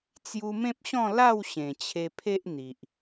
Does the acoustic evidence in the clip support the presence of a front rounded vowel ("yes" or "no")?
no